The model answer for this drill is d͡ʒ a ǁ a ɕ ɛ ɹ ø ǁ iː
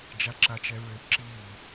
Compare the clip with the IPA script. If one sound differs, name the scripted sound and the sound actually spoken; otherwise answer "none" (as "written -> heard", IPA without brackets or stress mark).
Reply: ɕ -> t͡ʃ